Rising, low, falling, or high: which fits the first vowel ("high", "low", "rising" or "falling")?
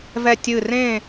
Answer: falling